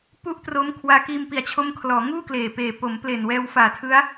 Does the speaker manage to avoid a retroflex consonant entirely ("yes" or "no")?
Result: yes